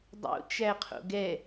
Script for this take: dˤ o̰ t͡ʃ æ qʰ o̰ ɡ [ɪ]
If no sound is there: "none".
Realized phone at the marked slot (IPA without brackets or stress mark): ɛ